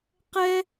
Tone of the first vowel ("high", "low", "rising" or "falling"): high